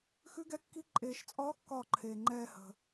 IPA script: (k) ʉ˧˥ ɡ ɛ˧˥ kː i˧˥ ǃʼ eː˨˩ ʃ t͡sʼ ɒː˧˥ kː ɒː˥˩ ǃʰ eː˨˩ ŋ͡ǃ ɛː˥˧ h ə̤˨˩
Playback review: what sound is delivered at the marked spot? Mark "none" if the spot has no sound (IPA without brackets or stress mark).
x